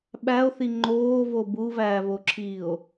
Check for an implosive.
present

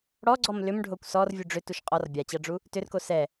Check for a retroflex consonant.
present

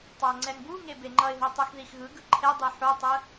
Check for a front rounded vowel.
absent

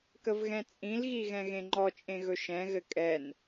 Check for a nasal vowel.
present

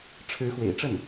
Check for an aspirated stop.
present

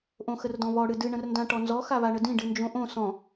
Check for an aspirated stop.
absent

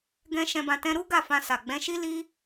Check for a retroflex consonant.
absent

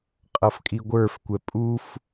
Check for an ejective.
present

